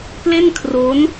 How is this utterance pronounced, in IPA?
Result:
ple˥˩nkʰro˦˥n

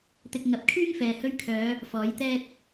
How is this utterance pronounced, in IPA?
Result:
t̪ɪ˧k̚ ŋɐ˨˥p̚kʰyː˥ŋfɛː˨ hɵ˧ɥkʰœː˨˧ | fɔː˨˥jt̪ɛː˥t̚

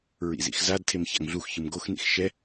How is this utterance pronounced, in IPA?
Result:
ɹḭzḭxzadtʰem ça̰ŋɮuxçɯm ɡoxnḭx ʃɛ

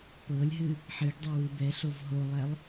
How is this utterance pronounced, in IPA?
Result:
pɤlʲɦɨ | ħɨɡdˤe wɨbɛɬov ɦolˠɛlˠ

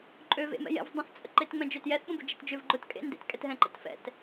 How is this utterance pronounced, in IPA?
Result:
ǃʼøvḛmɛ̰jɛ̰v dˤə̃θt͡sʼə̰ǃet ŋ͡mɛ̃d͡ʒøtjɛθ ɓə̃bʊd͡ʒetd͡ʒʏv ɡ͡ǃʊtkʼḛ ndḛtkʼɛtɦɛ̃ ǃə̰tfɛ̰t

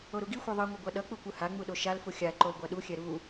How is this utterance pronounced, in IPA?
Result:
oɾuɡixʷɛ ðˤɯŋʷʌ ɡʷaɗʌk͡pu kʷɯhaŋ͡mu ɗoʃalfu xʲa ǃolɡʷaɗuxʲɛ ɾu

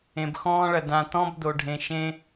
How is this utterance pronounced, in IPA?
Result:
ẽ˨bxɔ̃ː˦ɭɐ˨ dã˨t̪ɔ̃˦b d̪o˨ɖʱẽ˨ ʃẽ˦

